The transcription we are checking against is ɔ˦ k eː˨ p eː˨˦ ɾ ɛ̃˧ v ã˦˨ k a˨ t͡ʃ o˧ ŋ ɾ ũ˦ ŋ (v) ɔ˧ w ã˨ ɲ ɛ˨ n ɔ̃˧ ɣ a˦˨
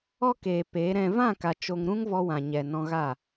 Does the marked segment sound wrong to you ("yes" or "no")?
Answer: no